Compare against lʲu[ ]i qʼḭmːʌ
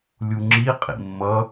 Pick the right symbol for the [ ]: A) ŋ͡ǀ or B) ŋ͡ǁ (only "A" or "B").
B